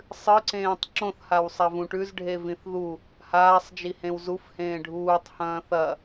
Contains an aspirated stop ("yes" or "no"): no